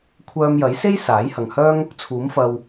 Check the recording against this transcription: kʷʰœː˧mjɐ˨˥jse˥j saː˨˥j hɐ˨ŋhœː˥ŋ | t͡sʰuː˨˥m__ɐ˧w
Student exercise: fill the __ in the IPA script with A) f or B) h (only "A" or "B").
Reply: A